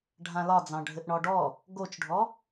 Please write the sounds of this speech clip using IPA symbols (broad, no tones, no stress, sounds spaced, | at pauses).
ɖʱ ã l ɒ d͡z ɑ̃ ɖʱ ɘ ʔ ɳ ɔ ɖ ɔ | ɡ o t͡ʃ ɖʱ ɔ